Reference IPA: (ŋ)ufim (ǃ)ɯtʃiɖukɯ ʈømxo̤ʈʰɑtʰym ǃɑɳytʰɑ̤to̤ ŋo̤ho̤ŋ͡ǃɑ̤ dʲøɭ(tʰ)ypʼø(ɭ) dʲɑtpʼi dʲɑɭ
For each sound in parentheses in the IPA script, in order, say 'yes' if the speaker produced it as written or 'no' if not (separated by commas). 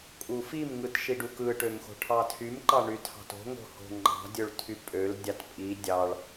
no, no, yes, no